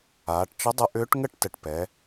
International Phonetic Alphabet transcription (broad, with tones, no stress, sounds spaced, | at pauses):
aː˩˧ ʈ t͡ʃ ə˧˥ dˤ ə˧˥ ʔ ʏː˧˥ ʈ ŋ ə˥˧ ʈ t ə˨˩ ʈ p ɛ˩˧